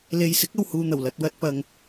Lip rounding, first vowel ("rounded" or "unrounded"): unrounded